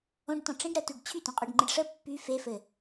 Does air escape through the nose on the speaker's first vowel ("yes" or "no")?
yes